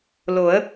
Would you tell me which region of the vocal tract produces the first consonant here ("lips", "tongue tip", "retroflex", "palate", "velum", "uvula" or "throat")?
tongue tip